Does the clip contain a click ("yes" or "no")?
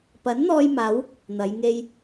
no